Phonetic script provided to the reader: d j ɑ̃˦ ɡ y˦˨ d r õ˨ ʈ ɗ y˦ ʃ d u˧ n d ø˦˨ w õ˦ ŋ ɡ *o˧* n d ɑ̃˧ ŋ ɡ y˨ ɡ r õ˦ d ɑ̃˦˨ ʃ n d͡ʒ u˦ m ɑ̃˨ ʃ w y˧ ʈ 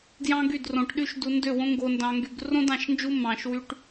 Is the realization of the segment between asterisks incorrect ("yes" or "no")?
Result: no